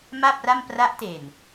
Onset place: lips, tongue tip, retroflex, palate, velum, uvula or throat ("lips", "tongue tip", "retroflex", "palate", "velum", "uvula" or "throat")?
lips